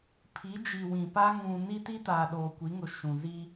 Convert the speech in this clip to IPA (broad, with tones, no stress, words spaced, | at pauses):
pʰi˨˦d͡ʒi˨wĩ˨pa˦ ŋũ˨ ni˦ti˦ taː˨ɗoː˨kʷi˨˦ŋʊ˨ ʃũ˨zi˦